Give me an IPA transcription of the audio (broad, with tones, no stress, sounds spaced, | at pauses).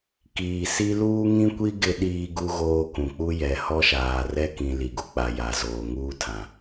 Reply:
k iː˨ s i˦ l uː˦ ŋ ĩ˦ kʷ i˦ ɡ ɪ˦ ɗ iː˦ ɡ u˦ ɣ oː˦ k ũ˨ k͡p u˦ j ɛ˨ h ɔ˦ ʃ aː˨ r ɛ˦ k ĩ˨ l i˨ ɡ u˨ k͡p a˨ j a˨ z oː˨ ŋ uː˦ tʰ ã˨